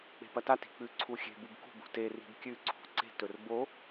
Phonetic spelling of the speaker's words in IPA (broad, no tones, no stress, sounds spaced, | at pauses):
k͡p e̤ p ɐ t a t i̤ k͡p ʉ ǀʰ u xʲ e̤ b u b k ṳ b ṳ t e r i̤ b kʲ ʉ ǀʰ ṳ ǀ e̤ t ɵ r b o